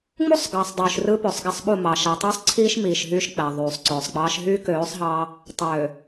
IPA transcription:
ŋ͡m u˦ sˤ ɡ ɑː˨ sˤ dˤ yː˨ ʃ r ɯ˦ p ø˨ sˤ ɡ æ˦ sˤ ɓ u˦˨ m ɑː˨ ʃ æ˨ tˤ yː˦ sˤ ǀʰ iː˦ ʃ m iː˨ ʃ ɦ yː˦ ʃ k͡p æ˨ ðˤ yː˨ sˤ ǀ øː˨ sˤ k͡p ɑː˦ ʃ ɦ yː˦ k øː˨˦ sˤ ɦ ɑː˦ | tˤ øː˨

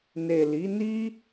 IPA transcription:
n e˨ l i˨˦ n i˦

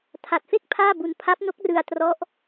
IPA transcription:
tʰ a˨˩ t̚ f e˥˩ k̚ pʰ aː˥˩ b u˧ n pʰ a˦˥ p̚ n o˦˥ k̚ r ɯ˧ a̯ t r ɔ˦˥ ʔ

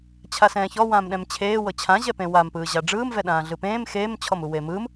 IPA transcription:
t͡ɕʰ a s ɛ̃ː ç ɔ w ãː m ɗ ɛ̃ m t͡ɕʰ eː w ɤ t͡ɕʰ ã ʑ ɛ p ẽ w a m p ɯː ʑ a ɖ͡ʐ ɯː m v ɛ ɗ ãː ɮ ɯ p ẽː m x eː m t͡ɕʰ ɔ m u w e m ɯ m

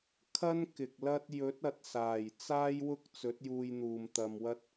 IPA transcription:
kʰ ɐ˥ n k ɪ˨ k̚ l ɐ˥ t̚ j ɵ˨˥ t̚ ɐ˨ t̚ s aː˨˩ j t͡s aː˥ j w ʊ˥ k̚ t͡s ɵ˨˥ t̚ j uː˧ j n̪ uː˨ m t̪ ɐ˧ m w ɐ˥ t̚

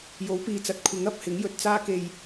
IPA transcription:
j o˨˥ w p iː˨ t͡s ɐ˨˥ t̚ kʷʰ ɪ˨˥ ŋ ɐ˨ p̚ h ɪ˨˥ ŋ j ɵ˧ t̚ t͡s aː˥ k e˧ j

